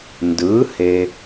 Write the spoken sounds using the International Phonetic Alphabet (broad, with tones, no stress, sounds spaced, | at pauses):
n d ɯː˩˥ h e˨